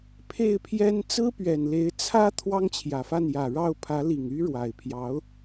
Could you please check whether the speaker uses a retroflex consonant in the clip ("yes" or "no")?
yes